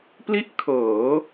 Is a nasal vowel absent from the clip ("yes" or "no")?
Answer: yes